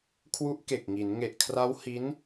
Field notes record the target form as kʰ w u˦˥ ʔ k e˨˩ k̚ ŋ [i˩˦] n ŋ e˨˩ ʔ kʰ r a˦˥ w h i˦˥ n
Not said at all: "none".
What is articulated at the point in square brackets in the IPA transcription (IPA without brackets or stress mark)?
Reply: i˩˦